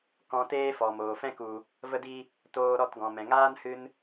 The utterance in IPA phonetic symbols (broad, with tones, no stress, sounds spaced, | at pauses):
k ɔ̃˧ t eː˦ f ɔ˨ m oː˨ f ɛ̃˦ k u˨ | v ə˦ d i˦ | t oː˧ ɾ ɔ˦˨ t ɡ ɔ̃˨ m ɛ̃˨ ŋ aː˦ n h ɨ˧ n